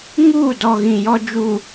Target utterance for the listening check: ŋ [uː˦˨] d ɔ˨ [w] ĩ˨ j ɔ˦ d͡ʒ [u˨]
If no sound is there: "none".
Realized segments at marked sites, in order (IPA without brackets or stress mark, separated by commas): uː˦˨, ɣ, u˨